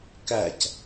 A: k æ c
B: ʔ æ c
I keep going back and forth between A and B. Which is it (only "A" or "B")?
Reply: A